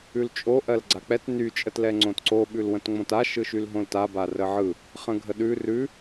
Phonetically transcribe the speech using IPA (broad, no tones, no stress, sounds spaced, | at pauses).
ʉ l t͡ʃʼ o ʔ ɜ l ɡ͡ǀ a k͡p ɛ t n y t͡ʃʼ ə t l ɛ ŋ͡ǀ õ t ǀ o ɓ ʉ l w ə̃ t ŋ͡m õ t a ʃ ɯ ʃ y l ɦ õ l t a b a r ə ʕ ɯ | χ ə̃ ɡʱ ə ɗ ʉ r ʉ